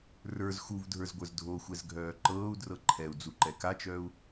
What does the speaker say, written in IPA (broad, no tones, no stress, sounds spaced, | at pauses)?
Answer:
r ə˞ z x u v dʱ ə˞ z ɡʷ ə˞ z dʱ o xʷ ɛ z ɡʱ œː ǃ ɤː u̯ d r ɤ ǃʰ ɛ u̯ d͡z u ǃ ɛ k a t͡ʃ œː u̯